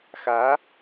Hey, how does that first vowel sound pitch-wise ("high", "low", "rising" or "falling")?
rising